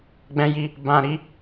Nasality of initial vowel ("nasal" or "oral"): nasal